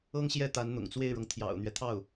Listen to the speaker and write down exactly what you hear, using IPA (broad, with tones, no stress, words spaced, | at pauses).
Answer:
ɤ˥ŋɕjɛ˥˩ t̪a˧˥nn̪ʊ̰˨˩ŋt͡swe˥˩ɪ̯ɻɤ˩ŋ t̪ʰjɑ̰˨˩ʊ̯n̪ɥɛ˦t̪ʰɑ˥˩ʊ̯